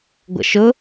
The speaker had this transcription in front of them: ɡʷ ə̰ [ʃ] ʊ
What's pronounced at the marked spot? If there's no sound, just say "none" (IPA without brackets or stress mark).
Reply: ʃ